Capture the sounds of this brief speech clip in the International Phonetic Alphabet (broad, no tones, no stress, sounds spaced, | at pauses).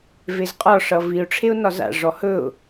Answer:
v e z qʼ ɒ ʂ ʌ v i ʊ̯ ʈ͡ʂʰ e ʊ̯ n ɒ z a̰ ʐ ɔ h ɵ ʊ̯